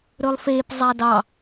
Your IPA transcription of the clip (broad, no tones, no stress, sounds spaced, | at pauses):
ɾ ɵ lˠ f e p zˤ a d ɑ